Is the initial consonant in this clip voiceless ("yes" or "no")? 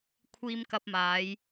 yes